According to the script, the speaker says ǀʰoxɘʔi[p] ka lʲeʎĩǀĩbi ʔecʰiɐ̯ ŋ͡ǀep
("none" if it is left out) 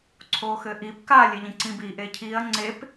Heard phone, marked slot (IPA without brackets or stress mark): p